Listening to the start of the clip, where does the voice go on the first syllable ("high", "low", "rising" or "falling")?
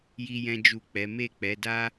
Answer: high